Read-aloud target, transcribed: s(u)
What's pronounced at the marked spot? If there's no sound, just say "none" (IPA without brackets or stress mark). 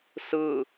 ɯ